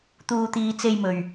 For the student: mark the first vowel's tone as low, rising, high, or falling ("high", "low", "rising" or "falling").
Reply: low